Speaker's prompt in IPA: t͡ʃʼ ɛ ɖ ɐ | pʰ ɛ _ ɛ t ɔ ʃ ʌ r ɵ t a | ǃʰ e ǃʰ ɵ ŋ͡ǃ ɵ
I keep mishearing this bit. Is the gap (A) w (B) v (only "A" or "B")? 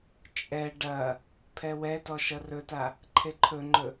A